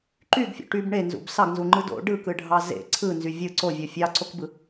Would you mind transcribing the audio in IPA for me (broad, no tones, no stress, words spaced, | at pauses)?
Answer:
ǃyɡfʲo̰ ʈyb ɳenzṵb sɑɡnzuŋ͡ǃɯ do̰ ɖɯkɯɖʱɑ zḛ ǀʰɯnzy vʲɯ ǀovʲo fʲɑǀokbɯ